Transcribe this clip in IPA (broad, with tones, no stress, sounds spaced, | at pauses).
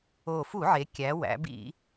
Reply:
o˨˩ f u˧˩˧ ʕ e˩˧ kʲ æ˩˧ w æ̰˩˧ b ḭ˧˩˧